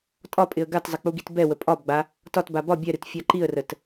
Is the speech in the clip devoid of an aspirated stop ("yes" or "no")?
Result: yes